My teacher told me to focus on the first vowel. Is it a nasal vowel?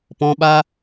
yes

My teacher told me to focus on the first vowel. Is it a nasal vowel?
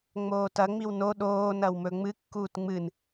no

